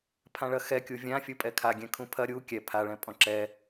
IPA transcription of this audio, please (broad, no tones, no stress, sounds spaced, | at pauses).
pʰ ã ɭ ɐ x ɛ kʲ u vʲ ã fʲ u pʼ ɛ kʰ a ɡʲ ɛ̃ kʰ ũ pʰ ɐ ɾʲ u kʲ ɛ pʰ a ɭ ɛ̃ pʼ ɔ̃ ǁ ɛ